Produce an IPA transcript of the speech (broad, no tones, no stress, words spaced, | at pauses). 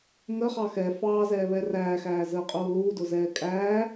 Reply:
ŋəχɑ xɛ fɑːzɛːβɛ ræːxæːzəːqʼuː luːdʊzɛː kʼæː